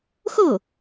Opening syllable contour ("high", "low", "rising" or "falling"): falling